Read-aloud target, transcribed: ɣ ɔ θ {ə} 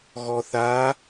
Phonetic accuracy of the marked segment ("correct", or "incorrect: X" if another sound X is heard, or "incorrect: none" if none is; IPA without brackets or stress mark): incorrect: a